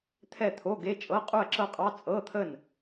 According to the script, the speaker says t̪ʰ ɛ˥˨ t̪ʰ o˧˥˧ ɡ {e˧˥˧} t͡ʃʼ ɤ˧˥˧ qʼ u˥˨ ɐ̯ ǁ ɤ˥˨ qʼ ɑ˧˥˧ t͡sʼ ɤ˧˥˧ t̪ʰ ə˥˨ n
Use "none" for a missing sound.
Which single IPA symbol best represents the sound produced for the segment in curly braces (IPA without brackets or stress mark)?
e˧˥˧